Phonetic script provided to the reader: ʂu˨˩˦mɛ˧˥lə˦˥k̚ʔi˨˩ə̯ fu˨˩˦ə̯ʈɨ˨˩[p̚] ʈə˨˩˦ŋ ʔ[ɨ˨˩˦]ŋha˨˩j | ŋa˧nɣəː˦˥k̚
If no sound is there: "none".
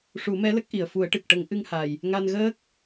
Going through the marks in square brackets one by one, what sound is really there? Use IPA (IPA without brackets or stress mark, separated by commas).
k̚, ɨ˧